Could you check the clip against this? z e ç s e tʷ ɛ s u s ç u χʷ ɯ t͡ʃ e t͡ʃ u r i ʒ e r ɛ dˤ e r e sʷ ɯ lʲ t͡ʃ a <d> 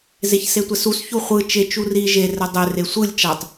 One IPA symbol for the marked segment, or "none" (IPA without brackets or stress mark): tˤ